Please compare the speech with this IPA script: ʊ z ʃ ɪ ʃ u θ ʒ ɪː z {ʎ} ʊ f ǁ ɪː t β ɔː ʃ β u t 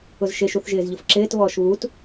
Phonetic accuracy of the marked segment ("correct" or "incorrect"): correct